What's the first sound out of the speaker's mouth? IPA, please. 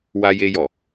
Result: w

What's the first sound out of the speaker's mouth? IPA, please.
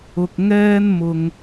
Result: ʊ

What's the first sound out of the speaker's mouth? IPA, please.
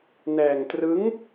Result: n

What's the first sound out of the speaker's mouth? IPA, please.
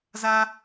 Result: z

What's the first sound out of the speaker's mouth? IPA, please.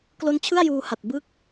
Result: k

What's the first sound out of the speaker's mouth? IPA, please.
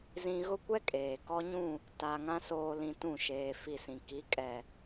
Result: z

